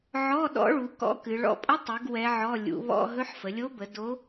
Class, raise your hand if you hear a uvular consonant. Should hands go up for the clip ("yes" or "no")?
no